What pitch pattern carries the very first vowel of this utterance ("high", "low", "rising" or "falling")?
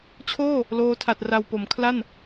falling